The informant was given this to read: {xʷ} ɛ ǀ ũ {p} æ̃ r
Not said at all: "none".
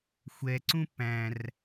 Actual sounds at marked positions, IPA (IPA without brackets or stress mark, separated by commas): xʷ, p